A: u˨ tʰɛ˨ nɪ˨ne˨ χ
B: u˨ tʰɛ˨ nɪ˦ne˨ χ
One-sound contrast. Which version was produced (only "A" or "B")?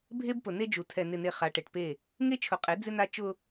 A